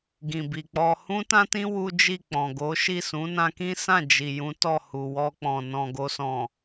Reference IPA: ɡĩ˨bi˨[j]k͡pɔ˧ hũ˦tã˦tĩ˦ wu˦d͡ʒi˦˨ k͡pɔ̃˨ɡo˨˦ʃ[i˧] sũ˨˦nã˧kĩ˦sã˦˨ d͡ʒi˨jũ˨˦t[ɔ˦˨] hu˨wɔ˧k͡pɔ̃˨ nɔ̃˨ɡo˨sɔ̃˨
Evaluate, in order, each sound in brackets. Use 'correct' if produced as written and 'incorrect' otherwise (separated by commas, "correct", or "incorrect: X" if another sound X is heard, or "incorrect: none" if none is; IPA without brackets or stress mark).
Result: incorrect: none, incorrect: i˦˨, correct